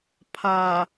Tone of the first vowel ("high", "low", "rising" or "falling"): low